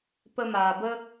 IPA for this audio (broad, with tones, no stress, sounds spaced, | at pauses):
p ə˧ m aː˨ b ə˦